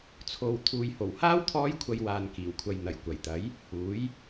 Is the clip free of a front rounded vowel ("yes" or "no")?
yes